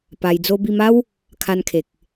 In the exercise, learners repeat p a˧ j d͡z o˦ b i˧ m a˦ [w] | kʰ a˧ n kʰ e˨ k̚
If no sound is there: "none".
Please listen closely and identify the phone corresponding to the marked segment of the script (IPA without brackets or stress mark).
w